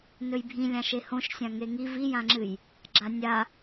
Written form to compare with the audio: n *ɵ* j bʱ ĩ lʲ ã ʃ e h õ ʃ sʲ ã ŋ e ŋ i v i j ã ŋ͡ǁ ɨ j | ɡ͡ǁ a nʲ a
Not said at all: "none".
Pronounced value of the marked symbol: ɵ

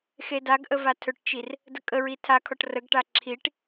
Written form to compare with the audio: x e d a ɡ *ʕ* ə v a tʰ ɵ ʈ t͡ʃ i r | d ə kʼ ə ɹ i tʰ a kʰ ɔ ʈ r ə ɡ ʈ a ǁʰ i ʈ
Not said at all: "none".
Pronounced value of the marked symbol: ʔ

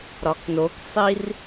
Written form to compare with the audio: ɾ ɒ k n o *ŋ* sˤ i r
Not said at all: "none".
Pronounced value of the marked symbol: k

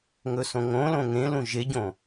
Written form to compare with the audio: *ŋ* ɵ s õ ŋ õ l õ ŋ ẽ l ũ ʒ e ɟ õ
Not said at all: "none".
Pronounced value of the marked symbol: ŋ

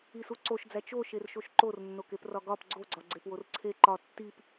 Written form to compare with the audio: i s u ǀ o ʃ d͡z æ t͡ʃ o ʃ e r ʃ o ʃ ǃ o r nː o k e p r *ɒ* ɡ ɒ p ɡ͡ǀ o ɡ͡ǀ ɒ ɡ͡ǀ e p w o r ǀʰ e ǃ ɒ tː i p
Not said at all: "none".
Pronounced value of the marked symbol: ɒ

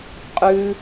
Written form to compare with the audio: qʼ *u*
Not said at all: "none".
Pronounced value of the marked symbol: ʉ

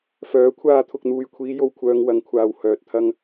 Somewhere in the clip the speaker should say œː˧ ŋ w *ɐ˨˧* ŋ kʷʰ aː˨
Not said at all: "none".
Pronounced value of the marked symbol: ɐ˨˧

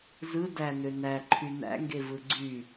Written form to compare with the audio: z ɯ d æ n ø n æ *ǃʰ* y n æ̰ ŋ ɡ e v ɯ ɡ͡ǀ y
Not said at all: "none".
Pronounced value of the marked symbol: ǃʰ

